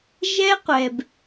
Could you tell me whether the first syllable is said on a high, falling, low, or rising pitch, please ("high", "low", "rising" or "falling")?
high